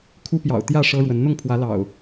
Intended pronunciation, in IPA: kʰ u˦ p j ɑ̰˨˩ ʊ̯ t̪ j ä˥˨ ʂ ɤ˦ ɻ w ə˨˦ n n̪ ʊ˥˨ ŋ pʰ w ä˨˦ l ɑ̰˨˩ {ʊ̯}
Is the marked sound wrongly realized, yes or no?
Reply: no